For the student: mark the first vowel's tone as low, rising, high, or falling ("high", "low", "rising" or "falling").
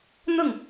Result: falling